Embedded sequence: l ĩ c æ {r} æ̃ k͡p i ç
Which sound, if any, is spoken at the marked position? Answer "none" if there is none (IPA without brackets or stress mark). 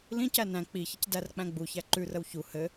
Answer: n